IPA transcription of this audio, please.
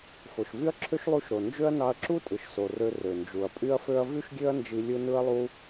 fo˩ʃvy˥ɐ̯ǁʰø˥ʃ lˠu˧ʃ ɾo˩ nd͡ʒø˥ɐ̯ nɑ˧ɐ̯ǁu˥tʼɯ˩ʃ so˩rø˧ rø˩nd͡ʒu˩ɐ̯pʼy˥ɐ̯fø˥ɐ̯ vy˥ʃɡʲø˥ɐ̯nd͡ʒi˧ lʲɯ˥ nɯ˥ɐ̯lˠu˥

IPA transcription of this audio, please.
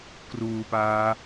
kruːpaː

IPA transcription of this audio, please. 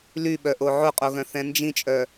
lyɓœʔo ʕoqʼoɣœ̃ θɛ̃nd͡ʒĩt͡ʃʼœ

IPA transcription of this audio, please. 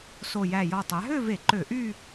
so˨˩jæ˨˩jɔ˨˩ tˤæ˩˧ɦø˥˧ve˧˩˧ ǃø˧˩˧ʔy˥˧

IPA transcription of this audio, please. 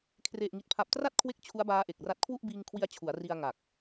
kʰre˨˩ʔŋi˨˩t̚pʰa˨˩p̚tra˥˩t̚ kʰwe˥˩k̚t͡ɕʰu˦˥a̯baː˦˥ ʔe˨˩k̚ra˦˥t̚ kʰwu˥˩ʔbiː˧ŋkʰwi˧a̯ t͡ɕʰu˩˦a̯ri˧a̯ ŋa˨˩k̚

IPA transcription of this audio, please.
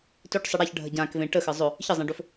tɵʈsˤə ɽaçɖʱə ɟãkvẽ ʈəxə zˤɵ | çəzˤɛ̃ɖɵf

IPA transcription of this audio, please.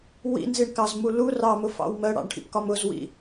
wḭnziɳkɑzmu lu rɑmʊfɑ̰w mɜɽɑ̰ɳʈʰḭpkɒm ʊzwḭ

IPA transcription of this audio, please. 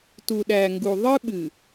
tu˨ɗæ˨ŋɡu˨ ðˤɨ˦ɓɨ˨

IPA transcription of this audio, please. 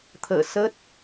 t̪ʰə̰ː˧˨ sə˦˥t̚

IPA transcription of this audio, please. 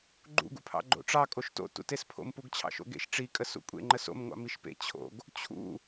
ɡ͡ǃṵ ɡṵpʰɑ̰ɡ͡ǃo̰ʈ͡ʂɑ kʼoʃto̰ tṵtespʰo̰m puɡt͡ɕʰɑ̰ʃo̰ɡḛʃ ʈ͡ʂi kʼəsṵkʷʼḛ ŋ͡ǃəso̰m ŋʷɑ̰miʃpḛ t͡ɕʰo̰ɡ | t͡ɕʰṵ

